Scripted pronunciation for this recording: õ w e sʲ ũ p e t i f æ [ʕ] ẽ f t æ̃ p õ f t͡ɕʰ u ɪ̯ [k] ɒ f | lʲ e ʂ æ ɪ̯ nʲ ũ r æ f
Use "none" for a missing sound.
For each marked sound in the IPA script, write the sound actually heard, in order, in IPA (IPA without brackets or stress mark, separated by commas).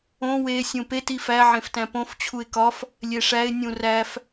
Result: ʕ, k